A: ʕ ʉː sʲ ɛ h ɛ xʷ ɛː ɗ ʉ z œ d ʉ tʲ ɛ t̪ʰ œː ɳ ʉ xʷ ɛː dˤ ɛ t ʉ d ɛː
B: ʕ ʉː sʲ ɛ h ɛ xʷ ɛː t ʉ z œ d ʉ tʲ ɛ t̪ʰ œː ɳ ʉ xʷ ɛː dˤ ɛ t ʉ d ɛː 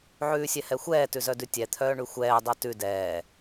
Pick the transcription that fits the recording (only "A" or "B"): B